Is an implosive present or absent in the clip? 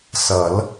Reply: absent